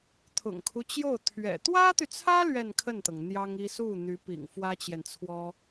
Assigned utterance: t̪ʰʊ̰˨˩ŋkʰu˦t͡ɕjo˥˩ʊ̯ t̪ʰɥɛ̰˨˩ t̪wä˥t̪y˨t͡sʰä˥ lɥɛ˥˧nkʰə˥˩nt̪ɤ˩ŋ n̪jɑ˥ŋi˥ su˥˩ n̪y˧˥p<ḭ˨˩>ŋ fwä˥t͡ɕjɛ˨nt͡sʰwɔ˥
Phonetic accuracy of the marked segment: correct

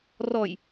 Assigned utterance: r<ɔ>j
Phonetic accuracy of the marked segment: correct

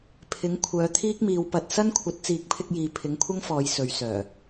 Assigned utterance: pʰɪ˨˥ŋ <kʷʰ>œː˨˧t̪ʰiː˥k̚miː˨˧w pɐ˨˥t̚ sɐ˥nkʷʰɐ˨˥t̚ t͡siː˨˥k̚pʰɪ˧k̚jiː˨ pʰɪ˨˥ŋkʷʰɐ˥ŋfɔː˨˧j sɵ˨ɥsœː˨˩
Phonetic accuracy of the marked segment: correct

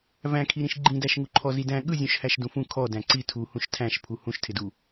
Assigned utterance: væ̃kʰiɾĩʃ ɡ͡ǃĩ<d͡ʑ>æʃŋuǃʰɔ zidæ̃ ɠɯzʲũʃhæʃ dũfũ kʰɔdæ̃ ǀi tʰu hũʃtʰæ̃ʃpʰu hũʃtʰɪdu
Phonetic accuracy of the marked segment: incorrect: d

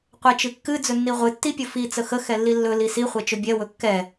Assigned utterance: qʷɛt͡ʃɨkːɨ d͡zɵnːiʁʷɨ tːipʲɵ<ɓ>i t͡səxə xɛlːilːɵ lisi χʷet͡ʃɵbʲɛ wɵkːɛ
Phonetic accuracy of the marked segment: incorrect: f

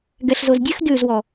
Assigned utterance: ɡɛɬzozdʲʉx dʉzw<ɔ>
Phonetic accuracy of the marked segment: correct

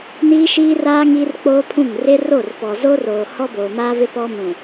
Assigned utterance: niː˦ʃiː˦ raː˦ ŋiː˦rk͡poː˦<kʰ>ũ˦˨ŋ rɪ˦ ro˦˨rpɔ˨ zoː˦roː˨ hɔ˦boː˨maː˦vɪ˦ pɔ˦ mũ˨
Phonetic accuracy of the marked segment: incorrect: pʰ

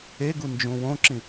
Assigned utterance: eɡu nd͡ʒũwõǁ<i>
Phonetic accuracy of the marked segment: incorrect: ĩ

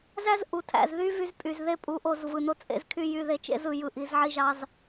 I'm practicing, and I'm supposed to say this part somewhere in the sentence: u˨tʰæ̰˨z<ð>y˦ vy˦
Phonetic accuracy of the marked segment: correct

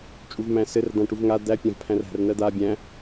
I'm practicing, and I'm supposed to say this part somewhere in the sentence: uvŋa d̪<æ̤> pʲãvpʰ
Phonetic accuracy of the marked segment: incorrect: æ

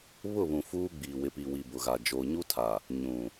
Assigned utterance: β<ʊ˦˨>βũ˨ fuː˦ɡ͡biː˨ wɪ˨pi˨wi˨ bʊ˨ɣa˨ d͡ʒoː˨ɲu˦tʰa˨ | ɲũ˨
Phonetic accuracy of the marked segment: correct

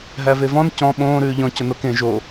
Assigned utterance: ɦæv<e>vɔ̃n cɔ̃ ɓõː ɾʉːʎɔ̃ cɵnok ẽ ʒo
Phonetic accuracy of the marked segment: correct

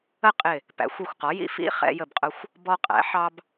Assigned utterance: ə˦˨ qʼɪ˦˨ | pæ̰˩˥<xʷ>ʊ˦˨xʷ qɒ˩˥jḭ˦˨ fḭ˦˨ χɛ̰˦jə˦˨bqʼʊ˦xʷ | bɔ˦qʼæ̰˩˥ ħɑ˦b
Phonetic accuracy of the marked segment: correct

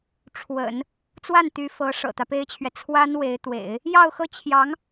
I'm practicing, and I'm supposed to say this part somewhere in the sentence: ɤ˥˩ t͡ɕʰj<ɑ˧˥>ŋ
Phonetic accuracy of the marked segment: correct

